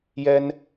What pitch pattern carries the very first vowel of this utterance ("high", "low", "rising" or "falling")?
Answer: high